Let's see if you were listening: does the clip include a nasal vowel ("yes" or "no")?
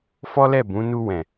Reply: yes